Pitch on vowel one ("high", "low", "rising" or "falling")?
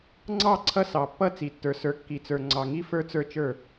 falling